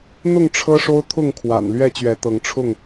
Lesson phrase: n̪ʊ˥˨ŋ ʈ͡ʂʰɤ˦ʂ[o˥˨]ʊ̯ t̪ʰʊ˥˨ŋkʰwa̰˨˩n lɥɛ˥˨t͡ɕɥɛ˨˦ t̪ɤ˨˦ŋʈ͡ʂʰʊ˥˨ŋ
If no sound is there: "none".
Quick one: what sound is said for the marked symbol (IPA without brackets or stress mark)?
o˦